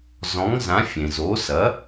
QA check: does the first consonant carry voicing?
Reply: yes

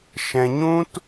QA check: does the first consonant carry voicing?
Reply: no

